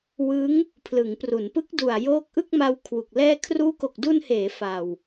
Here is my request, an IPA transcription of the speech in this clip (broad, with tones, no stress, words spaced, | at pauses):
wɯ˦˥ŋ | pʰlɯ˩˦ŋpru˩˦n pɯ˦˥k̚du˨˩a̯ joː˦˥k̚ʔɯ˥˩k̚ma˧w kʰwu˨˩k̚lɛː˥˩ kʰruː˦˥ko˨˩k̚du˧nheː˩˦ fa˨˩w